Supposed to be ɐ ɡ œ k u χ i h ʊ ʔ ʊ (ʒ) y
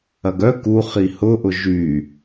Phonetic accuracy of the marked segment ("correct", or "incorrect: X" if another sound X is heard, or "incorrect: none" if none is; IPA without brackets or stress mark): correct